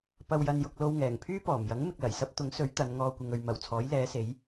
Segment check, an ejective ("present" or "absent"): absent